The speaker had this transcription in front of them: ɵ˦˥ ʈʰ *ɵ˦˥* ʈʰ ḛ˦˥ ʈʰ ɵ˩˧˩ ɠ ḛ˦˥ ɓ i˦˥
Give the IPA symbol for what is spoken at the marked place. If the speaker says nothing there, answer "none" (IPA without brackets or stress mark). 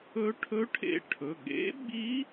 ɵ˦˥